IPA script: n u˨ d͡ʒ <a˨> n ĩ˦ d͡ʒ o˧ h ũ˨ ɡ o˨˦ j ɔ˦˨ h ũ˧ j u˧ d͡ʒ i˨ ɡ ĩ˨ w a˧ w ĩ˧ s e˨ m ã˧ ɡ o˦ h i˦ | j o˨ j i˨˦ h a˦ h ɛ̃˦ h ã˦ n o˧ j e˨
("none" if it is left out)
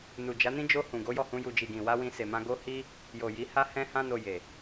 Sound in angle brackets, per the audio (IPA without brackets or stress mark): a˨˦